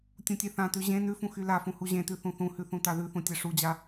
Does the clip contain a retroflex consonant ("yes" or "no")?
yes